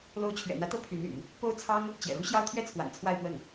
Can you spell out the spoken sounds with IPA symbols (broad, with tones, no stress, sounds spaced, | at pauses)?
l o˧˥ ʊ̯ t͡ɕʰ ɥ ɛ̰˨˩ n̪ ä˧˥ t̪ ɤ˥ pʰ y˧˥ n y̰˨˩˦ n | p o˥ ʊ̯ t͡sʰ ɑ˥ ŋ | t͡ɕ j ɛ̰˨˩ ɻ u˥ ɕ j ɑ˥ ʊ̯ t̪ʰ ɥ ɛ˥ t͡sʰ w a̰˨˩ n t͡sʰ w a˥˧ ɪ̯ p w ə˥˩ n